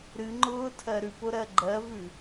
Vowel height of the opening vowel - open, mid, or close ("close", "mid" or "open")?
close